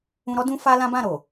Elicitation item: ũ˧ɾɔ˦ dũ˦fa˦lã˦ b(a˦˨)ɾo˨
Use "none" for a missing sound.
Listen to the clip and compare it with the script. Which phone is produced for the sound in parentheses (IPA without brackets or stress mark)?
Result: ã˦˨